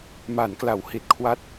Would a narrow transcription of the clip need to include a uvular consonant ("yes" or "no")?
no